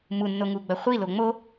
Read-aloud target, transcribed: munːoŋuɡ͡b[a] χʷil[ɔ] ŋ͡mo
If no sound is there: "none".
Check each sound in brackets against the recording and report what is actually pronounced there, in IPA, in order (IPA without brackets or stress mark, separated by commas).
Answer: ɐ, o